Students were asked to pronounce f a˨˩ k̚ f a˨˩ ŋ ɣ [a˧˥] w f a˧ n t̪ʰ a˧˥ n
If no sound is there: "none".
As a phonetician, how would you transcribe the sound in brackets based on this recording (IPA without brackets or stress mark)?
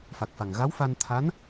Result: a˧˥